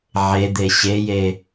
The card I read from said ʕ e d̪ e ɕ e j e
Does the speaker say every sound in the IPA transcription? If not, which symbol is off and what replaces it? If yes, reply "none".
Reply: none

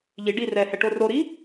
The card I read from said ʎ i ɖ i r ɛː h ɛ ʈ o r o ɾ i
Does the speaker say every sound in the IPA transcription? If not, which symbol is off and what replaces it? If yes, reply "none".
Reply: none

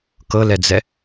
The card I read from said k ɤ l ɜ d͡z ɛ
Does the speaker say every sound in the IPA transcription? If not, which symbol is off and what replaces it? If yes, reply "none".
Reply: ɜ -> ɛ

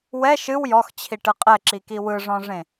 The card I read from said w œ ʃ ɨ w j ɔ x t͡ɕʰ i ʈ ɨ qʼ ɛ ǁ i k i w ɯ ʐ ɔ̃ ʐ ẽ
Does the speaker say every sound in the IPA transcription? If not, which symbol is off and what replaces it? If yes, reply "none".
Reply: œ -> ɛ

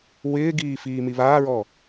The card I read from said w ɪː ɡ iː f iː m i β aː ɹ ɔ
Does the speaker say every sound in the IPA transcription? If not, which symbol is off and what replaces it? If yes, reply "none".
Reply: none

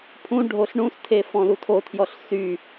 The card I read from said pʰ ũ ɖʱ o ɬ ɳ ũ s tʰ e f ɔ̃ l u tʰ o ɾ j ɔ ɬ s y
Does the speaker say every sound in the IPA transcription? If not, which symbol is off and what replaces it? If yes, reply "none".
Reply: ɾ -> tʰ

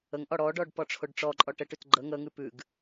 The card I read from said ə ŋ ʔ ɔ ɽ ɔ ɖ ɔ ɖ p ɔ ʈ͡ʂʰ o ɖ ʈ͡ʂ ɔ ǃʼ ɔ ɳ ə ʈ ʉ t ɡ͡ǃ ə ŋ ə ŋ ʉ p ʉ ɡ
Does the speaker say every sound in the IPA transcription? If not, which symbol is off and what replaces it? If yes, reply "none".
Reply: ɳ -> ʈ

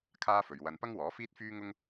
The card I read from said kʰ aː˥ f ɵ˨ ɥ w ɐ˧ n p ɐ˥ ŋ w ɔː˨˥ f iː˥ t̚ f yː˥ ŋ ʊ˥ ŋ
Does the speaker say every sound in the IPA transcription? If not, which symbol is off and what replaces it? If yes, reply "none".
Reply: none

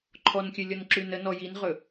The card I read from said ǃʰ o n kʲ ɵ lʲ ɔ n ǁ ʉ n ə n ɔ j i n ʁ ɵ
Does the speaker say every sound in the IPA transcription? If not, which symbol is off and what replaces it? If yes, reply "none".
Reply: o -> ɔ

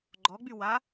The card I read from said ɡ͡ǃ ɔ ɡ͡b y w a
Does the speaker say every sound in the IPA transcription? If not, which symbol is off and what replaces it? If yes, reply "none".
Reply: none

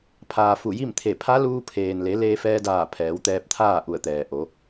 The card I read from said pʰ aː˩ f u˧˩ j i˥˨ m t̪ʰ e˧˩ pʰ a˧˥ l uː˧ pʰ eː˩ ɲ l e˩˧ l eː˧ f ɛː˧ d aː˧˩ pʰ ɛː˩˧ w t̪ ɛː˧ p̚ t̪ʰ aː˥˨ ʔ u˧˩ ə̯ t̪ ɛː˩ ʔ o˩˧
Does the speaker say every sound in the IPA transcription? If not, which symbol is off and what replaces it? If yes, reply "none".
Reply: ɲ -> n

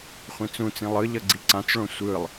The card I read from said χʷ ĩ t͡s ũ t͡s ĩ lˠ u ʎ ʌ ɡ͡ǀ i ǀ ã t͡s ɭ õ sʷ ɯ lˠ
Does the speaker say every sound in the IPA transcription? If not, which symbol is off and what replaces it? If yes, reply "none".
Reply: u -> ɯ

